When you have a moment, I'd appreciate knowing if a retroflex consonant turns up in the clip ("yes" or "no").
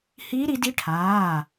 yes